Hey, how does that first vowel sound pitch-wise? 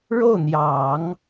falling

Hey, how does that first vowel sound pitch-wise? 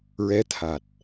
rising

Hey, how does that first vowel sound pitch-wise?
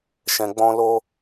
low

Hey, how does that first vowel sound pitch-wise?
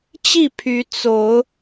falling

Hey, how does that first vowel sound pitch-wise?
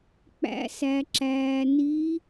rising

